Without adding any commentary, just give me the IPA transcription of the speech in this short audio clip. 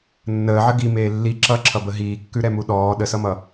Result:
nː əː ʕ ə ɡ i m eː lː i ǁ ʌ ǁʰ ʌ b ə ɦ iː kː ʉ ɾ ɛ m u ɗ ɔː ɗ ə s ʌ m ʌ

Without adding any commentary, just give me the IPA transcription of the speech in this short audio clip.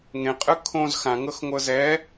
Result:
ŋ ẽ qʼ ɯ kʰ õ z x ã ŋ ɤ x ŋʷ ɤ z ɛ

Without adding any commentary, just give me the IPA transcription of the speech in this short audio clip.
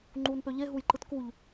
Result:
ŋ͡ǃ uː n p ø ʎ e ɦ u j ǃ ɯ t k u ʎ

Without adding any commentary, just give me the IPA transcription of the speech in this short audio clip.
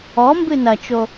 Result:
ɔ m b ɨ n ɐ t͡ʃ o

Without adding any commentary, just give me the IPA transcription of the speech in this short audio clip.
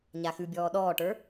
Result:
ɲ a x ʉ bʲ ɔː ɗ ɔː ʈ ə˞

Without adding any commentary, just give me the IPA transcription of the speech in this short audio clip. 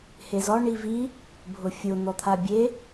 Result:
h e z ɔ ɳ i v i | bʱ ʊ fʲ ʊ n̪ ɔ t̪ʰ a bʲ e

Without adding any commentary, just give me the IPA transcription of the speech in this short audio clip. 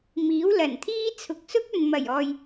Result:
m iː˨˥ w l ɐ˨˩ n t̪ʰ iː˥ t͡sʰ ʊ˨ k̚ s ʊ˥ k̚ ɵ˨ n m ɐ˨˩ j ɔː˨ j

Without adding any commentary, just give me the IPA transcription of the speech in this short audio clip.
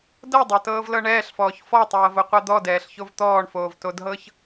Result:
d ɤ dˤ ɤ t ɤː v l ɤ ɳ ɛː ɬ f ɔː ç f ɔ tˤ ɤː v o qʷ a d̪ ɔ d ɛː ɬ ç o v t̪ ɔː ɳ f oː v t o d ɦ ɤ ç

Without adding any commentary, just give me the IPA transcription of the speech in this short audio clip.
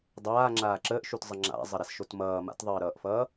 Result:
dˤ aː ŋ͡ǁ aː ǁ əː ʔ ʃ u t zˤ ʌ ŋ͡ǁ a̰ zˤ ʌ ɾ a s ʃ o t m ʌː m a̰ t ðˤ əː ɾ ʌː ʔ f ʌː

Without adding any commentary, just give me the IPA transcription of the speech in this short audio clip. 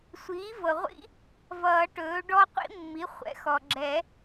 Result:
sʷ iː˩˥ v ɤ˩ ʁʷ ḭ˦˥ | v ʌː˨˩˦ ʈ ɵː˩˥ ɖ ɔ˦˥ qʷ ḭ˦˥ mː i˩˥ χʷ ɛ̰˩˥ x ɔ˩ ɡ͡ǁ ɛ˨˩˦

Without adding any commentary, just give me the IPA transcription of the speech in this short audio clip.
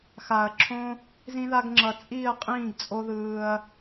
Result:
x a˨ ɐ̯ ǁʰ õ˦ | z ĩ˧ ð a˧ ɡ ŋ͡ǁ ʌ˨ t͡sʼ iː˦˨ ɐ̯ qʼ ĩː˦˨ ɡ t͡sʼ o˦ ð ɯː˧ ɐ̯

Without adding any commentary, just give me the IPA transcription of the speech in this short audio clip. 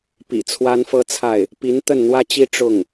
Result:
p ḭ˨˩ t͡sʰ w a˥ n f ɤ˥ t͡sʰ a˥˩ ɪ̯ | p i˧˥ n t̪ ə˥˩ n n̪ w ä˥ t͡ɕ i˥ ʈ͡ʂ ʊ˥˩ ŋ

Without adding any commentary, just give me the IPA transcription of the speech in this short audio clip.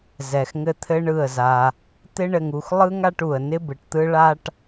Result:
z ɛ˨ x ŋ ɘ˧ t̪ʰ ɘ˦ ɳ ɯ˦˨ ə̯ z a˧ | t̪ ɪ˦ ɳ ɘ˧ ŋ u˧ x lˠ ɯ˦ ŋ a˧ ʈ u˨ ə̯ n ɪ˧ b ɯ˨ ʈ t̪ ɯ˧ ɭ a˧ ʈ

